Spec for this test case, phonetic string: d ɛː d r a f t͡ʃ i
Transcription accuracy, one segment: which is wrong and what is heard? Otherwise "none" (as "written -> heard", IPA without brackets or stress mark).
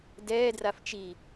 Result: none